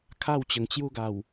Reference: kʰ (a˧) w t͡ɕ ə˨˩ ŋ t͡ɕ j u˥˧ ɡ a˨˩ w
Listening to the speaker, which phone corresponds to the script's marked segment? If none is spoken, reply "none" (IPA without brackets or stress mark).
a˥˧